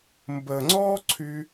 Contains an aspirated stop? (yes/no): yes